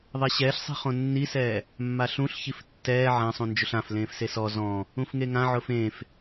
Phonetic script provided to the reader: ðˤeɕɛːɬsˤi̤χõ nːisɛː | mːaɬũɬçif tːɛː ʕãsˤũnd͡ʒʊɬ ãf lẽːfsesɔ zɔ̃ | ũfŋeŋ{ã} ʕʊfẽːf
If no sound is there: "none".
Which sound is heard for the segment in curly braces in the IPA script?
ã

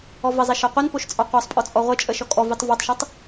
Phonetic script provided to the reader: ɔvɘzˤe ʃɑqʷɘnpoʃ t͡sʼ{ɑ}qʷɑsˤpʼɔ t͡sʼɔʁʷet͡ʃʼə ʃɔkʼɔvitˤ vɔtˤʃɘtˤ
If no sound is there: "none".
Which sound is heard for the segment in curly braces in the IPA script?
ɑ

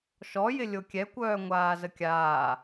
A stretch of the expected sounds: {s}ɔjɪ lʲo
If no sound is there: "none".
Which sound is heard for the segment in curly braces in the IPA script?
ʃ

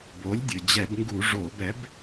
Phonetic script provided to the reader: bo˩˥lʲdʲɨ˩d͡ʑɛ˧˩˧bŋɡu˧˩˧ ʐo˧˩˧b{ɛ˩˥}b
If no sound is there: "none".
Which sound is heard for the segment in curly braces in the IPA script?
ɛ˩˥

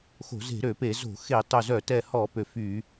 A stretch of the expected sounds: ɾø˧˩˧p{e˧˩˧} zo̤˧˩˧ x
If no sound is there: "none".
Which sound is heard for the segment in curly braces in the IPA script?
e˧˩˧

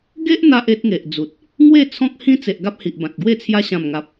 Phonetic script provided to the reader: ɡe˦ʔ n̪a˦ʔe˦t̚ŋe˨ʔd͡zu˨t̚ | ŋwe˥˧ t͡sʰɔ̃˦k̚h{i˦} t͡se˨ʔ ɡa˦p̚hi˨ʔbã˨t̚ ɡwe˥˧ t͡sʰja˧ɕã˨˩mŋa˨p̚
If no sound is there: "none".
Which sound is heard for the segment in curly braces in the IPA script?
ĩ˦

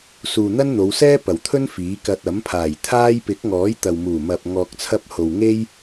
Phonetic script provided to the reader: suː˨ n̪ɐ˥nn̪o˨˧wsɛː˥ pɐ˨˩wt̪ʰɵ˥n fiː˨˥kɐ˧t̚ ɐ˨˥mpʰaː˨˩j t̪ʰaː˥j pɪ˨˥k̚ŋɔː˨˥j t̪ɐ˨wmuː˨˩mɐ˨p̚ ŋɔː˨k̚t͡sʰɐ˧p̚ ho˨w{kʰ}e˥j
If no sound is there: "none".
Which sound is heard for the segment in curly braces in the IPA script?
ŋ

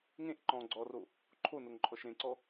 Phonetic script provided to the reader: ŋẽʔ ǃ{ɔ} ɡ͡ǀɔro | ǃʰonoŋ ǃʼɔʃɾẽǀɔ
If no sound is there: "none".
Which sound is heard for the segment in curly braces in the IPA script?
ɔ̃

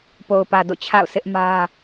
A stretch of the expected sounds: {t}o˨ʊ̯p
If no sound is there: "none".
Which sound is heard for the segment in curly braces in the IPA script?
p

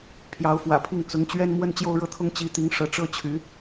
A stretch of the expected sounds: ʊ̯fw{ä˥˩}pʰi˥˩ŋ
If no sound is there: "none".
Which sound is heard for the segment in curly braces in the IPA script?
ä̰˨˩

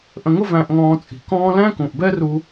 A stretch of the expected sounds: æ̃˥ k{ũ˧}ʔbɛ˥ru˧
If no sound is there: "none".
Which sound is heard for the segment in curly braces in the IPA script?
ũ˩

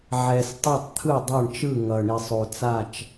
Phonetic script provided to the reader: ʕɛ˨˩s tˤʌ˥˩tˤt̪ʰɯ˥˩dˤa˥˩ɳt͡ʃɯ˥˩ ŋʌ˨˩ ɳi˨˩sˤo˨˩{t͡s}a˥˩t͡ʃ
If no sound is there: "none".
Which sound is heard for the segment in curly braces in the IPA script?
t͡s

